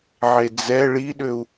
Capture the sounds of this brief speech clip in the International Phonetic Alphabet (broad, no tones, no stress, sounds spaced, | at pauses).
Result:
ʕ e d͡z ɛ ɭ i ɗ ø u̯